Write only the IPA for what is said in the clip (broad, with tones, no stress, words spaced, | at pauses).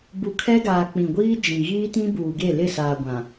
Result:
bu˨kʰɛ˦ɡaː˨ k͡pĩ˨ɡʷiː˦ d͡ʒĩ˨ ɣiː˦tĩ˦buː˨ɡe˦˨ lɪ˦˨saː˨ ɡʷã˨